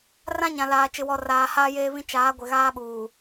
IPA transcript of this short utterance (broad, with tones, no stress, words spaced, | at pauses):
rã˦ɲã˨laː˨ t͡ʃɪ˨wɔ˨raː˨ haː˦jeː˦βĩ˦ t͡ʃaː˨˦ ɡʷɪ˨ɣaː˦ɓuː˨